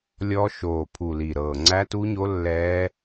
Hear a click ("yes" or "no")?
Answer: yes